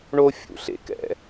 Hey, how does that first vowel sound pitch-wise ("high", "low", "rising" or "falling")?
high